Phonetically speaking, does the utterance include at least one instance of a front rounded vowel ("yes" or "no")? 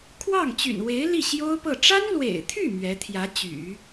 yes